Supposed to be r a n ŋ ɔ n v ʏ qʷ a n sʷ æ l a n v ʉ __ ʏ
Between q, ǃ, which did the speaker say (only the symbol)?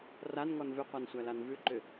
ǃ